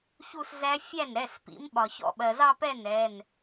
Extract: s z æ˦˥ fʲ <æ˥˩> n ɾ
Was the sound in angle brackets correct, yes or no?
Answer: yes